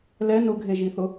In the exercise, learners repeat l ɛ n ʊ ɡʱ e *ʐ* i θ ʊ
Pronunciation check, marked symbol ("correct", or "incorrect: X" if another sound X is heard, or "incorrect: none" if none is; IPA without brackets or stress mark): incorrect: ʒ